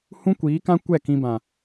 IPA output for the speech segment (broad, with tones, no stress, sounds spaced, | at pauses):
h ũ˦ kʷ iː˨˦ k ã˦ kʷ ɛ˦˨ k ĩ˧ b ã˨